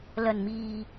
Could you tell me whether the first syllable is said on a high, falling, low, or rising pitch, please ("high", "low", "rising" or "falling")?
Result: low